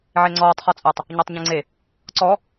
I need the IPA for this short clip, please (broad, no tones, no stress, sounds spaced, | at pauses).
ʕ e ŋ͡ǀ ɔː tˤ χ ɔ t͡sʼ ɘ tˤ | ɲ ɔ tˤ ɲ ẽ ŋ͡ǀ e | ǀ ɔ